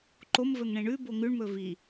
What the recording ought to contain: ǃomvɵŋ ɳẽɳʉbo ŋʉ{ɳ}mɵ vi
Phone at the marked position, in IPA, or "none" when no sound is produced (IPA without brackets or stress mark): ɳ